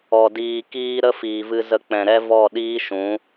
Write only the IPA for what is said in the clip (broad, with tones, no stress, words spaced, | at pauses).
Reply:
ɔ˨ diː˨kiː˧ ɾə˦fiː˨vɨ˧ zə˦k͡pɛ̃˧ ɾɛ˦vɔ˦˨ ɗiː˦ʃũ˨˦